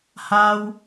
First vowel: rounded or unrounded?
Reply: unrounded